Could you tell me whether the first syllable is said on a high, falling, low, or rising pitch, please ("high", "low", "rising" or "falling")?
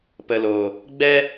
low